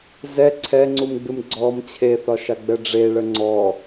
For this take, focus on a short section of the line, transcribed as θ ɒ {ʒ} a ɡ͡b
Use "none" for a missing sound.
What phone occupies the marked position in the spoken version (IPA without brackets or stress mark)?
ʃ